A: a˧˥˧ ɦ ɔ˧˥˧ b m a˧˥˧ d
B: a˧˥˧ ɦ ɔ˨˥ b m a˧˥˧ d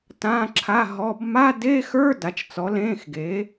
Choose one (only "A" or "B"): A